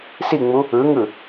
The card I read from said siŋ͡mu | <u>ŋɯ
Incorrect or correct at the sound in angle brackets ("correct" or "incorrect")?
incorrect